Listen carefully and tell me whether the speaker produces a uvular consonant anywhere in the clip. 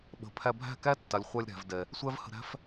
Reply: yes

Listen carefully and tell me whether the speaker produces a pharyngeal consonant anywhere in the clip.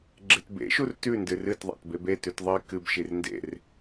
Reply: no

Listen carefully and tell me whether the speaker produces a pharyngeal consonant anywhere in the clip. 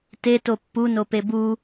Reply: no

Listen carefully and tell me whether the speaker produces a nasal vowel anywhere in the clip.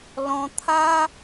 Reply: yes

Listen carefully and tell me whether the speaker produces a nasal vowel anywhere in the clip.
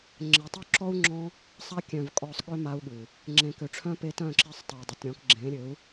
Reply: yes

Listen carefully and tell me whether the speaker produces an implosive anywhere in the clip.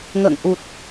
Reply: no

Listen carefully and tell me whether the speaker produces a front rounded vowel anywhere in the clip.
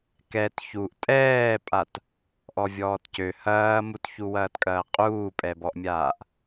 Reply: yes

